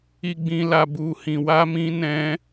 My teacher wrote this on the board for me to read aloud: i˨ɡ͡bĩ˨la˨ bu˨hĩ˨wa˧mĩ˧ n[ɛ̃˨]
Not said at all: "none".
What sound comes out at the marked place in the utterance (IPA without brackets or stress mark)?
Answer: ɛ̃˧